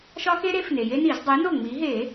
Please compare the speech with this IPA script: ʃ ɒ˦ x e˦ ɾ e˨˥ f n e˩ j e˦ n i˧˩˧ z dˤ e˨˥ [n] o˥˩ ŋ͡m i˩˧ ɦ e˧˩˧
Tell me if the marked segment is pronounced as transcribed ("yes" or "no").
yes